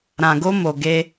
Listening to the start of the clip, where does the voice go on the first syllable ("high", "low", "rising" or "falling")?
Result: low